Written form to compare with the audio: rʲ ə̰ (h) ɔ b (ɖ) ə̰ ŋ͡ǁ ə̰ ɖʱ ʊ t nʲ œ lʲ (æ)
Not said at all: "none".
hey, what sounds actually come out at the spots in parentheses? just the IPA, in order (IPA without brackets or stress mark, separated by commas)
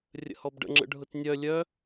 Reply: h, ɖ, œ